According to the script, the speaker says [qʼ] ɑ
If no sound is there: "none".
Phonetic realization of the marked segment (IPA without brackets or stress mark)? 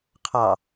qʰ